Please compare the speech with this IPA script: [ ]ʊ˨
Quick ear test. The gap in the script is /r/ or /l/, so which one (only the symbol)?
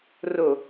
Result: r